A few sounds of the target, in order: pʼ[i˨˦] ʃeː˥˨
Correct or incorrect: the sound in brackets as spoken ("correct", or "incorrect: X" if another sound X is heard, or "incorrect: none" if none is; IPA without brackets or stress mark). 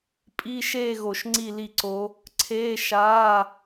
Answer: incorrect: i˧˥˧